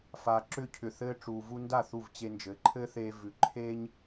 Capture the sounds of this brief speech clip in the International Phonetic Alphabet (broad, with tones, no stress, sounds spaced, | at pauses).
f a˩ ǁ ʏ˧ cʰ ʏ˩ θ ɘː˧ ʈ͡ʂ uː˩ v u˧ n d a˥˩ θ u˥˩ v t͡ɕ e˧ n d͡ʒ ɘ˩˥ ǃʰ ɘː˥ θ eː˧ v ʉ˩ ǃʰ e˥ ɲ